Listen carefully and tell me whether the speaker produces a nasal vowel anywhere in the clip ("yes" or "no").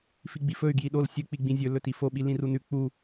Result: yes